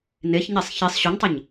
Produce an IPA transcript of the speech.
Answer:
n e ç ɲ e sˤ ç i sˤ ɕ u ɲ tˤ ɯ ɲ

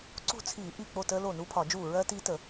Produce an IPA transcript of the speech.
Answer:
ǀ ṳ˥˩ t͡sʰ iː˧˩˧ ʔ i˥˩ k͡p o˥˩ t əː˦˥ l o˥˩ n u˦˥ pʰ ɒ˧˩˧ d͡ʒ uː˥˩ ɹ ɜ˦˥ t i˦˥ t ə˧˩˧

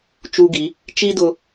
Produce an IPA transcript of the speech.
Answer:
t͡ʃ u˧ ɡ i˩˧ | t͡ʃ i˥ d ʊ˧

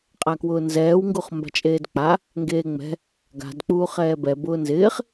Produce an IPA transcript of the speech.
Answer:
qʼ a k w ʊː n z ɛː w ŋ ɡ u χ m b a̤ t͡ʃʼ eː d k͡p a | ŋ ɡ eː ŋ͡m ɛ̤ | ɡ a̤ d k͡p uː χ ɛː b ɛ b ʊː n z ɪː χ

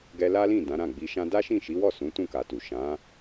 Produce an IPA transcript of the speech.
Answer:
ɡ ɛ˧ l a˦ l ĩ˦˨ d ã˨˦ ɾ ã˦˨ ɡ͡b i˧ ʃ ã˦ d a˦ ʃ ĩ˦˨ ʃ i˨˦ w ɔ˦˨ s ũ˨˦ t ũ˦˨ k a˨ t u˨ ʃ ã˨˦

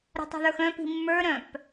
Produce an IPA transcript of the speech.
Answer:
ɾ ə̤ tˤ ṳ ð ə˞ x œ̃ p i̤ mː ə˞ ɾ œ̃ p

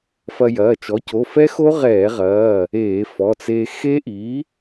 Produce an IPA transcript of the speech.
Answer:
f ɐ˧ j ɐː˩˧˩ t͡ʃ ɔ˩˥ c o˩˧˩ f ɛ˦˥ x o˦˥ ʁ ɛː˧˩˧ ʁ ɐː˩˧˩ | eː˧˩˧ f ɔ˩˧˩ t͡s eː˧ x e˦˥ ʔ i˩˥

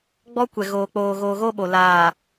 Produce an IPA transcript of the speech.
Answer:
ɡ͡b ɔ˦ kʷ ɛ˨ ɣ oː˨ k͡p oː˨ ɣ oː˨ ɣ oː˦ ɓ o˨ l aː˨

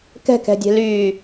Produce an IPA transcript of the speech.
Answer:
k ɛ̤ k ɛ̤ dʲ ɛ̤ l yː

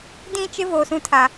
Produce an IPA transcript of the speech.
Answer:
d ĩ˦˨ t͡ʃ ɪ˦ v o˨ s ũ˦ tʰ a˨

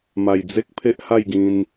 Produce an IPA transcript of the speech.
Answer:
m a˨˩ j d͡z e˦ k̚ pʰ e˦ ʔ h a˥˧ j ɡ ĩ˧ n

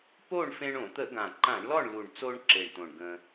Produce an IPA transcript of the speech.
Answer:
p o˥˨ ɳ f ẽ˧ ɳ õ˧˩˧ t̪ ə˧˩˧ ɡ ã˨˩ ǃ ã˧˩˧ ɳ l ɔ˥˨ ɳ l u˨˩ ɳ t͡s o˧ ɳ ǁ e˨˩ ɳ t̪ õ˨˩ ɳ ɡ ə̃˧

